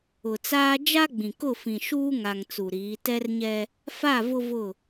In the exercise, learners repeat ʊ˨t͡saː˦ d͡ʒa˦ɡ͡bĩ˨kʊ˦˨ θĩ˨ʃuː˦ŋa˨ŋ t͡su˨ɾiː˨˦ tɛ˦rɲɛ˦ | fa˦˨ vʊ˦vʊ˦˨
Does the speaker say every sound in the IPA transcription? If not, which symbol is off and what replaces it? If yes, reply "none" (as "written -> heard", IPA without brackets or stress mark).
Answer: θ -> f